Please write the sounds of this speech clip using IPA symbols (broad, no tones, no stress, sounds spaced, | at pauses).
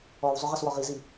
ɔ w zˤ ʏ ʁ ə s w ɔ ʁ i z i